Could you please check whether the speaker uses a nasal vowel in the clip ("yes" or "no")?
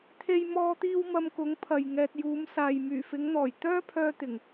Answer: no